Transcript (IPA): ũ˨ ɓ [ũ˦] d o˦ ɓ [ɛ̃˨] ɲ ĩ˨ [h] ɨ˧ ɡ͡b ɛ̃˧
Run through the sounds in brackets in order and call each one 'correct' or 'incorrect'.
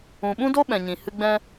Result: correct, correct, correct

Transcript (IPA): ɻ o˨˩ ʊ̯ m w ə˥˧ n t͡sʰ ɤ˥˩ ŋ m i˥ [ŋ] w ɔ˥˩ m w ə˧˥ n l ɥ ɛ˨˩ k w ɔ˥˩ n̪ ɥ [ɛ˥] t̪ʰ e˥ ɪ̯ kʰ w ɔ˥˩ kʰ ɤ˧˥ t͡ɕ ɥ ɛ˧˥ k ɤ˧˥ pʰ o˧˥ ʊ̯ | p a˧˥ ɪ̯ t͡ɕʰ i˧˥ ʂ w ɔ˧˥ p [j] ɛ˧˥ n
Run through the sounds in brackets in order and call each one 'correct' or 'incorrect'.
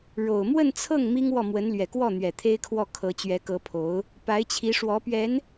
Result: correct, incorrect, incorrect

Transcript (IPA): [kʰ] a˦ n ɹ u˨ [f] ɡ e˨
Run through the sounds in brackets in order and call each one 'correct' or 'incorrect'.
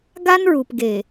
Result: incorrect, incorrect

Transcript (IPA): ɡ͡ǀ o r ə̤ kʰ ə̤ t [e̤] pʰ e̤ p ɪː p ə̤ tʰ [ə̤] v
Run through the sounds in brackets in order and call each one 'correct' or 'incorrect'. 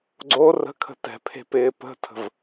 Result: incorrect, correct

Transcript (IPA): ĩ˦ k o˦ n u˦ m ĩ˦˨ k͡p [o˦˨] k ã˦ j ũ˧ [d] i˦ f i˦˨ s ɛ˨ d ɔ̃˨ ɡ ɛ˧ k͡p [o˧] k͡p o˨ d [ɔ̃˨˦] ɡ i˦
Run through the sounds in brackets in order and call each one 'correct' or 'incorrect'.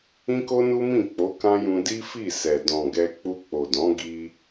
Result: incorrect, correct, incorrect, correct

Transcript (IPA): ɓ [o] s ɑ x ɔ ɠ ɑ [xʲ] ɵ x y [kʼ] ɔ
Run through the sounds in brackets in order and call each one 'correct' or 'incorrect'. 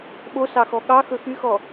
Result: correct, incorrect, incorrect

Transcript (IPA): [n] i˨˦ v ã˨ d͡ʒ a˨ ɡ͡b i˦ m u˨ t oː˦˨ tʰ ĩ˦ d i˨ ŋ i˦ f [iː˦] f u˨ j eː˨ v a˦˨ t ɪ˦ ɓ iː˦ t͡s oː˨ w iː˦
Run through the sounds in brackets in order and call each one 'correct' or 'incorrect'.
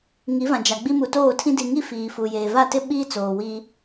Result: incorrect, incorrect

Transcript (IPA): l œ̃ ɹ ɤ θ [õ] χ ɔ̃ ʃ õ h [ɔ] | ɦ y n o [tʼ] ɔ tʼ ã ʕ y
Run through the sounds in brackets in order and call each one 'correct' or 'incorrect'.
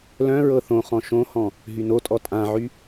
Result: correct, incorrect, correct

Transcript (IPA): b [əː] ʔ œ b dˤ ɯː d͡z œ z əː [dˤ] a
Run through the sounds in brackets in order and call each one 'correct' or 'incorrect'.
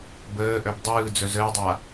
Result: correct, correct

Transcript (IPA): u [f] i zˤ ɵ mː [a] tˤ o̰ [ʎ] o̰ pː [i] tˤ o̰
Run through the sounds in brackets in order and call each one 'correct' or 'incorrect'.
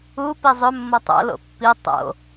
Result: incorrect, incorrect, incorrect, correct

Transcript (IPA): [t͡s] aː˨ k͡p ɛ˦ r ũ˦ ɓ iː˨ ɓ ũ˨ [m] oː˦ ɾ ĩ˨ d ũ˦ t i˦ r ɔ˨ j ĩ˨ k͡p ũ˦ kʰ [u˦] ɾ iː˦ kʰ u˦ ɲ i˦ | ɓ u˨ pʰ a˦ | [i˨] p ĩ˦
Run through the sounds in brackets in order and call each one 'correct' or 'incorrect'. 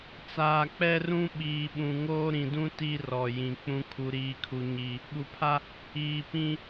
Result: correct, incorrect, correct, incorrect

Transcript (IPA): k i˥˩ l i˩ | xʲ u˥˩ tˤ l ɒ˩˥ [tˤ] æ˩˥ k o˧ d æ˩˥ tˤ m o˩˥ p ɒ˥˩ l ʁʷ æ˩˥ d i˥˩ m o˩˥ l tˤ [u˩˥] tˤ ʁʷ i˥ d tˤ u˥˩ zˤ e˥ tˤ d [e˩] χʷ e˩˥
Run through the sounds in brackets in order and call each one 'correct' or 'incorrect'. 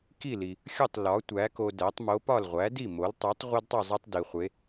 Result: incorrect, correct, incorrect

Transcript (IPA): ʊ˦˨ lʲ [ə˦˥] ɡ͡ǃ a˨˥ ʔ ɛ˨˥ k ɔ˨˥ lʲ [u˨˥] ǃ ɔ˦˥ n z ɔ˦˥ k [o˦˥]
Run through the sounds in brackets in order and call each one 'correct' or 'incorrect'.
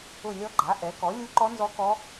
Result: incorrect, incorrect, incorrect

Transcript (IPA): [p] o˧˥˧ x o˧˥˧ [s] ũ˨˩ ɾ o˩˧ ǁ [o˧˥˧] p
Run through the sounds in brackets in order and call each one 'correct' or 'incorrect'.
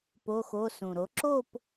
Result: correct, correct, incorrect

